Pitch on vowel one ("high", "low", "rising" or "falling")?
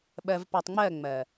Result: low